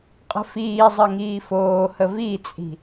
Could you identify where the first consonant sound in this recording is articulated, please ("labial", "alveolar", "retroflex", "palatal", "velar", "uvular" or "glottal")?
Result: uvular